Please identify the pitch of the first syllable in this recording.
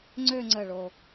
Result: falling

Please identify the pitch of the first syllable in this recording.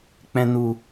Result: low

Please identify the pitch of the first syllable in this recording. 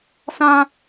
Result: high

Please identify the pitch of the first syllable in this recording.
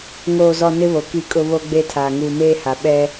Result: low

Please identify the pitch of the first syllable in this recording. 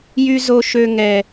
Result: high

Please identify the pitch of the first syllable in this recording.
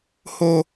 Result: high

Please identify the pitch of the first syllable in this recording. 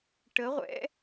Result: rising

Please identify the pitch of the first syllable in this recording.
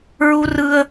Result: high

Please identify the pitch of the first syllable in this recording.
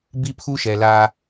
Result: high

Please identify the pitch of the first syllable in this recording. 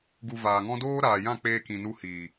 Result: low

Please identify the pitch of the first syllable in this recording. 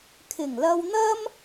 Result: low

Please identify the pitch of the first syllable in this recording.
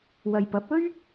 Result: low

